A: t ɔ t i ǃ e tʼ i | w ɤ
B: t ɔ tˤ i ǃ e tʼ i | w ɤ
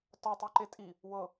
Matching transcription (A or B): B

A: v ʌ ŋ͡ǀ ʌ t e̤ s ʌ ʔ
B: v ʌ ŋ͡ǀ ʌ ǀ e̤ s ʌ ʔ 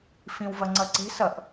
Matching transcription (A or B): B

